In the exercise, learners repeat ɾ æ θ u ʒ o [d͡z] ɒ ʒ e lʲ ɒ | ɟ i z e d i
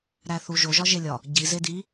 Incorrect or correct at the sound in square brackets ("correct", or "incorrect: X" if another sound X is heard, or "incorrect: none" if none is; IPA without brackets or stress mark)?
incorrect: ʒ